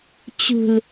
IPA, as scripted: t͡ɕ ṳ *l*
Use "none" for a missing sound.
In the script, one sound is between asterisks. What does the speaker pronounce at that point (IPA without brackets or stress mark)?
l